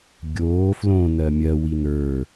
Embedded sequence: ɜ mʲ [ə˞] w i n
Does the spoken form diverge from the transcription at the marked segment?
yes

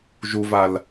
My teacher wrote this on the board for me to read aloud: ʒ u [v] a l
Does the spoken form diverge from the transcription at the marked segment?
no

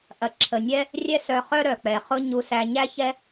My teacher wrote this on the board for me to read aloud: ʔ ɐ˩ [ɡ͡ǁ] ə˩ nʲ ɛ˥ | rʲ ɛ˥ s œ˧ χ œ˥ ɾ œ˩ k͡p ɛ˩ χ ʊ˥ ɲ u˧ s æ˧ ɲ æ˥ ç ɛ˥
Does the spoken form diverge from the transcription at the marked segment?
yes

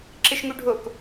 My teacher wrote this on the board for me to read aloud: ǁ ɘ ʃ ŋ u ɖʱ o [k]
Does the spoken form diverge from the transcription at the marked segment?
no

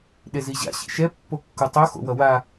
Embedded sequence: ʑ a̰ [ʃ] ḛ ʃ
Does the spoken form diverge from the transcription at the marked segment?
yes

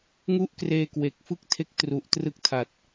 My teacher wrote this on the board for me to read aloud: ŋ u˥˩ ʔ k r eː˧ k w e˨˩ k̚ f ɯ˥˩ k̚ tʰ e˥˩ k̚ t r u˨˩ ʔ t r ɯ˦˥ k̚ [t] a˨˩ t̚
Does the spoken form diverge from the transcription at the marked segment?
yes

